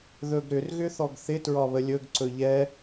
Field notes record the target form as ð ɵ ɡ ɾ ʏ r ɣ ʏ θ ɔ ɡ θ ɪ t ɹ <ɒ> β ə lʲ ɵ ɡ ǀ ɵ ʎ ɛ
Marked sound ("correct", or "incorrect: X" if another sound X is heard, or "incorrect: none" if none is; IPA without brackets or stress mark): correct